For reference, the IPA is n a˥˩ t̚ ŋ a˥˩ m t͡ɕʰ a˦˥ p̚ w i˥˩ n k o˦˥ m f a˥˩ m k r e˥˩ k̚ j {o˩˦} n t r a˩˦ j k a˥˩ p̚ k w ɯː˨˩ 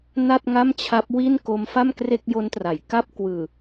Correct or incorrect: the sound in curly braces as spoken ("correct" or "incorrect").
incorrect